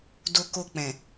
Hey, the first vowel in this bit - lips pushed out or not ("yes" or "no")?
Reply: yes